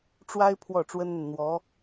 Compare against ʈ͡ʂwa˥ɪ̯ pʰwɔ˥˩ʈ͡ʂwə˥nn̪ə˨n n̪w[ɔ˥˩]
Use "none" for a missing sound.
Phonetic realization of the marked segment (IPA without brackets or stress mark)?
ɔ˧˥